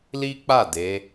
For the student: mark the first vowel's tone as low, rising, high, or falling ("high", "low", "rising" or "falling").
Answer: high